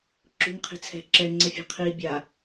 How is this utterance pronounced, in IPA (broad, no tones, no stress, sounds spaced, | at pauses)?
ǁ ṳ ɲ qʰ i̤ t͡sʰ ɛ̤ ǁ ɛ ŋ͡ǀ ɛ fʲ a̤ qʰ i bʲ a